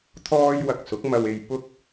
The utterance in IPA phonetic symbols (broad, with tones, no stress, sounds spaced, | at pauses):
t̪ʰ ɔː˧ j w ɐ˨ k̚ s ʊ˨˥ k̚ m ɐ˧ w e˧ j p ʊ˥ k̚